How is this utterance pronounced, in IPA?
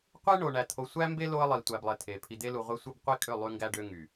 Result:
qʷe˦ɳo˨ɳæ˨ t̪ʰo˨sʷæ˦mbe˦ lo˦ə̯lˠi˨tʷæ˨blˠe˨ tʰe˨ pʰi˨d̪e˦lu˨ ʁʷe˦sʷɯ˦b qʷi˦kʼø˦˨ lˠy˦ŋɡæ˦ɖø˦ ŋy˨

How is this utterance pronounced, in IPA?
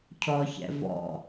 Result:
cʰɔçɛ̰ vɔ̰

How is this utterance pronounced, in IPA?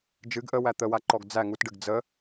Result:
d͡ʒɨɡ ʔəwæ t̪əwaǃɔɡ d͡zæ ŋutɖɨɡ d͡zə

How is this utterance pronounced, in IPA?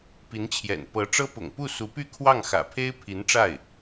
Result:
pi˧˥nt͡ɕʰjɛ̰˨˩n pɤ˧˥ʈ͡ʂɤ˥ pʊ̰˨˩ŋpu˥˩su˧˥py˥˧ kʰwɑ˥˩ŋxä̰˨˩pʰe˥ɪ̯ pʰi˧˥nʈ͡ʂa˥˩ɪ̯

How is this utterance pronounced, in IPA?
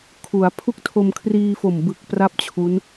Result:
kʰu˩˦a̯ pʰu˥˩k̚tʰo˧mkʰriː˧fo˨˩m bɯ˨˩k̚ pra˥˩p̚t͡ɕʰu˦˥n

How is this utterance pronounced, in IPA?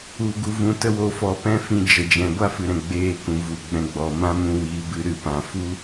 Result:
u˨ ɡu˨vũ˨tə˧wo˨ fɔ˧pɛ̃˦fĩ˧d͡ʒə˨ d͡ʒɛ̃˨ ɡʷa˦fɨ˨ɾɛ̃˨ ɡ͡beː˧kũ˨vu˨ ɡ͡bɛ̃˧ɡ͡bɔ˨ mã˦mũ˧wiː˨˦bɨ˧ ɾɨ˨pã˨fu˦

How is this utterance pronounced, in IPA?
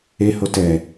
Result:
eho tɛ

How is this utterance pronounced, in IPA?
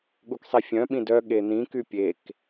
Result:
ɠuksˤifʲœ̃ɓĩ dœ ɠen̪ĩky pʲek

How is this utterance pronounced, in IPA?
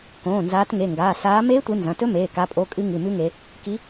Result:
kõː˩˧˩nzaː˨˦tŋe˩˧˩ŋɡaː˩˧˩ saː˨˦ meː˦˥tʷɨ˨˦ nzɐ̃˩˧˩tɵ˦˥meː˩˧˩ ka˩˧˩pʼo˩˧˩kʼɨ˨˦ ŋɨ˩˧˩mʉ˦˥ŋe˨˦ | ki˨˦

